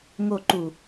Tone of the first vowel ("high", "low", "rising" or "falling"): low